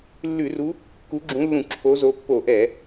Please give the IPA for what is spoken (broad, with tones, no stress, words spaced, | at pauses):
lːʉ˧˩˧ru˨˦ | ku˨˦ɡ͡ǁũ˨˦lːũ˧˩˧ ǁʰo˨˦zo˨˦pːo˧˩˧ ʔɛ˧˩˧